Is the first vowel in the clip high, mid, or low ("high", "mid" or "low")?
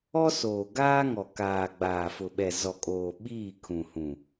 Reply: mid